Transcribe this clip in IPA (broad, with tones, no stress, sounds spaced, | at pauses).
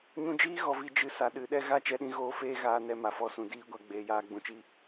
ɲ ũ˧ d͡ʒ iː˦ ɣ ɔ˨ v i˨ d͡ʒ ɨ˨˦ s a˨ ɗ ɨ˨˦ ɗ ɛ˦ ɣ a˦˨ t͡ʃ ɛ˧ ɗ ĩ˧ ɣ oː˧ f eː˦ ɣ aː˧ n ɛ˧ m a˨ f ɔ˧ s ũ˨ d iː˧ ɡʷ a˨ ɡ͡b eː˨ j aː˧ ɡ͡b ũ˨ t͡ʃ i˧